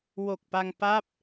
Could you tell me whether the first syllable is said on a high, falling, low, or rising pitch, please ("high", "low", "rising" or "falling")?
low